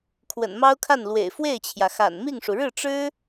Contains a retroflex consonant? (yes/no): yes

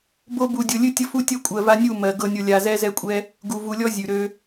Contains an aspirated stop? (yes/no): no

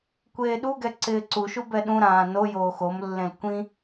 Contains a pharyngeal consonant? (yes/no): no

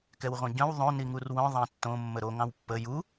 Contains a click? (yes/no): no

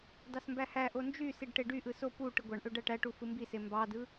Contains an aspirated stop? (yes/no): no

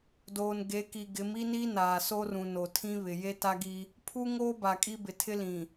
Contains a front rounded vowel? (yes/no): no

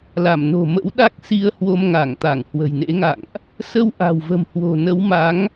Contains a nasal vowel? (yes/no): no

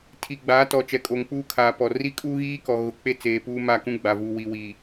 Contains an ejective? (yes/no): yes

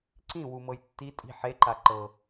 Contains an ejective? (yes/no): yes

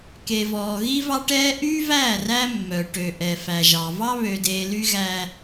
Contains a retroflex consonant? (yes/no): yes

